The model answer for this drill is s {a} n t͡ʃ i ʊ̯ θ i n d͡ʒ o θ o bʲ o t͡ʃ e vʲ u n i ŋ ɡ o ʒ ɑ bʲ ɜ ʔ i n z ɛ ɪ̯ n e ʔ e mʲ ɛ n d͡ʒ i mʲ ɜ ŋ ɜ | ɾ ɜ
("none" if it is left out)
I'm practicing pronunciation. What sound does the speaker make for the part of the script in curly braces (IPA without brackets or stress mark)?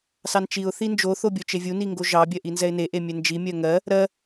ɑ